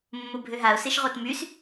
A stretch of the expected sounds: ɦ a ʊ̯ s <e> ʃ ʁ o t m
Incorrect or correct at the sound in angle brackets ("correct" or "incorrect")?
correct